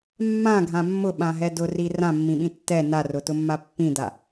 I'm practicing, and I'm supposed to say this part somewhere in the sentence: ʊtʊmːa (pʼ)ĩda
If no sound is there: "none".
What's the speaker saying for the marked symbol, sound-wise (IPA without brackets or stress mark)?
pː